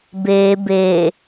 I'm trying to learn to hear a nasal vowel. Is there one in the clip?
no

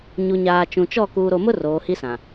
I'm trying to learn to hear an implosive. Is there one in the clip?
no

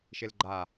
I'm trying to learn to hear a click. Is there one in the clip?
yes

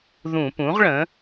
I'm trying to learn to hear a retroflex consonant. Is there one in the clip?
yes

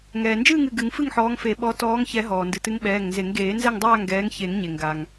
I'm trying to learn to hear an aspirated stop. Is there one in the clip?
no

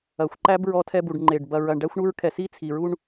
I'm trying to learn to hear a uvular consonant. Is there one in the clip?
no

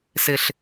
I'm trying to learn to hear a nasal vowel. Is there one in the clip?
no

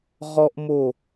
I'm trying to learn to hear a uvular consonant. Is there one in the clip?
yes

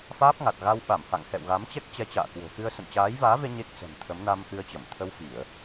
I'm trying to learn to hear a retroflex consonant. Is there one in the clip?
no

